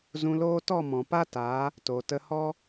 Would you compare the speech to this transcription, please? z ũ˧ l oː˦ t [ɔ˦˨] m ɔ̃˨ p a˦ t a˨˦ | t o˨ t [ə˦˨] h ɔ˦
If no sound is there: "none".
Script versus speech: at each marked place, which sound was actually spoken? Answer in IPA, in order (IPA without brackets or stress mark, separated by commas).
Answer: ɔ˦˨, ə˧